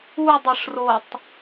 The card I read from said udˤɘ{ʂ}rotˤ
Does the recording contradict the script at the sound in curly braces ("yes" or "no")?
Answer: no